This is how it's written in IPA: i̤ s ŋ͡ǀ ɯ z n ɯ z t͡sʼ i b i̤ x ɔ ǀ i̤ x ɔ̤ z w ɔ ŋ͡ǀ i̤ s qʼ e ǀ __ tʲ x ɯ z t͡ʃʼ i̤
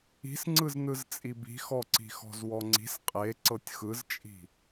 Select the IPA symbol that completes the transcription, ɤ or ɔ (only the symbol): ɤ